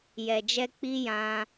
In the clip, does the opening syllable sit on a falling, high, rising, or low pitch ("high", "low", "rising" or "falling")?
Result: low